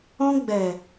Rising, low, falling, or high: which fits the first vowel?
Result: high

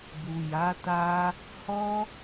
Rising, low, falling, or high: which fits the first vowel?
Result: low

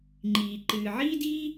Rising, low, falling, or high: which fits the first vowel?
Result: low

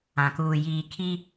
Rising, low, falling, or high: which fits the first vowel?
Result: low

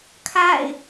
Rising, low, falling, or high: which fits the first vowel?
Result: falling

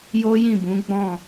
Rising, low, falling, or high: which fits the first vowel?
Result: high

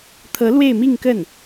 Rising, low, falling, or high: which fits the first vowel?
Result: rising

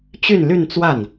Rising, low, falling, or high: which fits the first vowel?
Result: falling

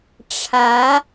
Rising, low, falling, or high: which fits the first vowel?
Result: rising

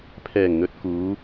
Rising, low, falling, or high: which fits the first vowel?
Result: low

